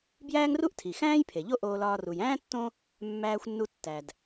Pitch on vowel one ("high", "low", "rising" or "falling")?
high